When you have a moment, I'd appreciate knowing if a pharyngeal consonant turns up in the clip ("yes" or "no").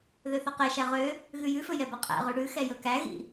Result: no